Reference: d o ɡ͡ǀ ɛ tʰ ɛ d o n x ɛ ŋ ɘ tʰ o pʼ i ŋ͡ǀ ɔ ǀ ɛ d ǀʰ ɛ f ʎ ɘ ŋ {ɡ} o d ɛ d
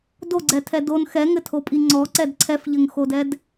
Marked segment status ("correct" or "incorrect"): incorrect